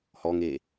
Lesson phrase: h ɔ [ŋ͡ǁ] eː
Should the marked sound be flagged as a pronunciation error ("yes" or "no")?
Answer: yes